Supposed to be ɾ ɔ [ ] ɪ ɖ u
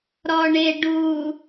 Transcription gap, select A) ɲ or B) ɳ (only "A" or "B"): B